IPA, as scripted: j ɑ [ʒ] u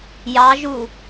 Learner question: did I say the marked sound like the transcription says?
yes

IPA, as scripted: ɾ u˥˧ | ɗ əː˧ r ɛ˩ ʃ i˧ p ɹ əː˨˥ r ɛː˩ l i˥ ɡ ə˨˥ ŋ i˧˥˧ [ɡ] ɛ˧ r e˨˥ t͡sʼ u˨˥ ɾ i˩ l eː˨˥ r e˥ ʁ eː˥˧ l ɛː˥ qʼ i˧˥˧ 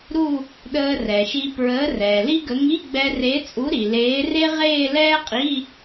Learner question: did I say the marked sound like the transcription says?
no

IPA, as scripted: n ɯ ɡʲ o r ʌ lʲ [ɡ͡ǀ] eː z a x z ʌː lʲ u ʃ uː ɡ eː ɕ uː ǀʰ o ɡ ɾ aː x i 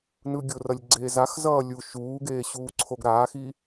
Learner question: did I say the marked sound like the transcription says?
yes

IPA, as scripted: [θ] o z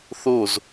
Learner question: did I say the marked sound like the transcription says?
yes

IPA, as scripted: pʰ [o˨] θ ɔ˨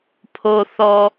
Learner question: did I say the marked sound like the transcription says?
yes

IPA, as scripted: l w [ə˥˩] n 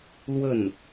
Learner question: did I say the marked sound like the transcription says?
yes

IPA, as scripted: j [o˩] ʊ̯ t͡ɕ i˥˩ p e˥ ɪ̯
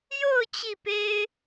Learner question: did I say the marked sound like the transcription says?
no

